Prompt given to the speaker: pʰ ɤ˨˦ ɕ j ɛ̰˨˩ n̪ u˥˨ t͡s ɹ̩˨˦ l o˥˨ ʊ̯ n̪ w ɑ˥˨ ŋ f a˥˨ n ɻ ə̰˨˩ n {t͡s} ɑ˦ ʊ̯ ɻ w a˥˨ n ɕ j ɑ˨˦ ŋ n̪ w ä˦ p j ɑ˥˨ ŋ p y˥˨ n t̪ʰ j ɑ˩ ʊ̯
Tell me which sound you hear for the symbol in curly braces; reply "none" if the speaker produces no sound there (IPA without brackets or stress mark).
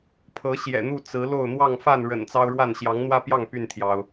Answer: t͡s